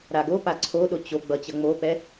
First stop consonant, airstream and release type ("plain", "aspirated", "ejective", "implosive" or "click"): plain